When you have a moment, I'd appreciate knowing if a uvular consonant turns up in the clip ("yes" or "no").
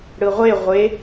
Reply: yes